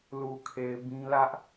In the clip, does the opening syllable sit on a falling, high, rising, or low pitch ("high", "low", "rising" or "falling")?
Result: low